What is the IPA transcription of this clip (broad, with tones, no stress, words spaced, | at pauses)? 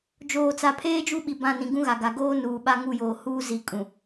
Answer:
d͡ʒoː˨t͡sa˨pʰeː˦ d͡ʒu˦ɓi˨ bã˦˨nĩ˨ɡũ˦ɣa˨ ɡa˨ɡoː˦ nuː˨ɓa˦ ŋu˦˨joː˨ huː˦zi˨kʼũ˨